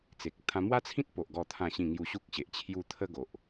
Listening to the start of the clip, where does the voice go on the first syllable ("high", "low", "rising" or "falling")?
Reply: low